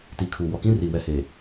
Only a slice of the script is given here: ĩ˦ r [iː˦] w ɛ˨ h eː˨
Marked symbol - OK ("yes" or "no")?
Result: no